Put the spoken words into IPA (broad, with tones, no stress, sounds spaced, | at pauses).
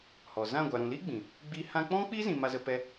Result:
h ɔ˨ z ã˦˨ ɡʷ a˨ ɾ ũ˨ l i˦ ɡ͡b ĩ˨ | ɡ͡b i˧ h ã˧ k͡p ɔ̃˦ k͡p i˦ z ĩ˨ m a˧ z ə˧ p ɛ˦